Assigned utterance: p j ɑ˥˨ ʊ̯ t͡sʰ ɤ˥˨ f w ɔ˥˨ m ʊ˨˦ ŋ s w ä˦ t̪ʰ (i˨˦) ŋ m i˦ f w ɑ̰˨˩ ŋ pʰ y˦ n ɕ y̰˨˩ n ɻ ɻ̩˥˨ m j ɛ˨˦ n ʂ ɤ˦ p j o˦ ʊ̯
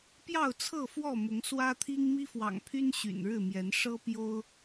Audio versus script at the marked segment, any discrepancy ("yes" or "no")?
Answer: yes